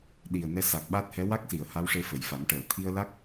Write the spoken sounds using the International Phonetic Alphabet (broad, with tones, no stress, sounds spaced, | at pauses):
ɗ i˨˩ ə̯ n ɛ˧ s a˨˩ k̚ ɓ a˦˥ t̚ h ɛ˧˥ w a˦˥ k̚ s i˨˩˨ ə̯ h a˧˥ w ʂ e˧ f ə˨˩˨ j f a˨˩˦ m ʈ əː˨˩˨ t̪ʰ i˧ ə̯ l a˦˥ k̚